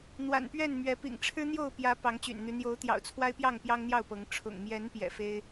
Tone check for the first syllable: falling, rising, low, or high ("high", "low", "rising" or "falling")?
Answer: low